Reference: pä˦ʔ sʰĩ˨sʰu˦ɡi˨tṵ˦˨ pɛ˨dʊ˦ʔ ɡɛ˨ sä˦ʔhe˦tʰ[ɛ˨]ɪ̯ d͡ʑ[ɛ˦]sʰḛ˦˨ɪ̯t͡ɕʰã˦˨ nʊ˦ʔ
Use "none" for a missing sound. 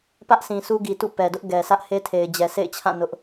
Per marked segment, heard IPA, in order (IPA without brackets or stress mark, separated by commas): e˨, ɛ˨